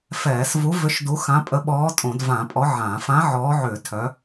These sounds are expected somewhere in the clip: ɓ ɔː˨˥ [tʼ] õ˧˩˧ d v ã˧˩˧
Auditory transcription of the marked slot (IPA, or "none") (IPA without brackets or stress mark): tʼ